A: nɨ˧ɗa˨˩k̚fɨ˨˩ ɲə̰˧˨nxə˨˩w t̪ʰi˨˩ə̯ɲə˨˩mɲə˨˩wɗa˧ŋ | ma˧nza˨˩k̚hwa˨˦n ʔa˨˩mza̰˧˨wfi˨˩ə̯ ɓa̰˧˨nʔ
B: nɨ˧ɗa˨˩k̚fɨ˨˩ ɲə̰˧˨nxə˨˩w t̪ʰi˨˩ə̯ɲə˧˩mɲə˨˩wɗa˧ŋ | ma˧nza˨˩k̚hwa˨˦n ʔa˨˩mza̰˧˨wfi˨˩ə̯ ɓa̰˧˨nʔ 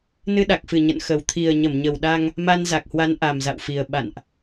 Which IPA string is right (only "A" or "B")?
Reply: B